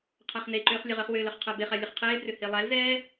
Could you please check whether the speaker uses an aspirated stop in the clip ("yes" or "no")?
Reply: yes